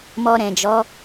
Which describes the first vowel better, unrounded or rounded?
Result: rounded